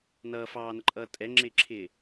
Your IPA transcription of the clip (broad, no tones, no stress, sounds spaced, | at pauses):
n ʌː f ɑː n ə ǃʼ ʌː tʼ ɛ ŋ͡ǁ ɪː ǁʰ ɪː